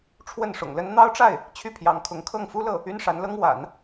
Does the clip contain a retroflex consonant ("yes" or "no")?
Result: yes